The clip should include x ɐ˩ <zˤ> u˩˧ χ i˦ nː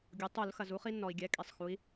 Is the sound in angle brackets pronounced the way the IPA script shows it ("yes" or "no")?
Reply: no